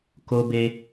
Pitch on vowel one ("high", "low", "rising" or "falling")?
high